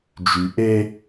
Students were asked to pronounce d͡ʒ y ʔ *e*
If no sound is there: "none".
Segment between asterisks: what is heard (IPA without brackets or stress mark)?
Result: e